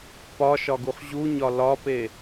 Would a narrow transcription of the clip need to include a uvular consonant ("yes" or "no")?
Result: yes